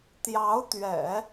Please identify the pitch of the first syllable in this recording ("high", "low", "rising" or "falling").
rising